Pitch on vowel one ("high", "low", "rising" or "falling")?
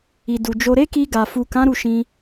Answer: low